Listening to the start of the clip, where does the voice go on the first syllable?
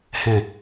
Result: low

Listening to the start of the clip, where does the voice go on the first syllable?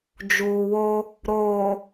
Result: low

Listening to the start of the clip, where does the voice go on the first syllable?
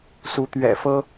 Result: rising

